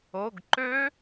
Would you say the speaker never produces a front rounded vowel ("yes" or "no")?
no